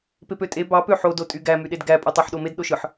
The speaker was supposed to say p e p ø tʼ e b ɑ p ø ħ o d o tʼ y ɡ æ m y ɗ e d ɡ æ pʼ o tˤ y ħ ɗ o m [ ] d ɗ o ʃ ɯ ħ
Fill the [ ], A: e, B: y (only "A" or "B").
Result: A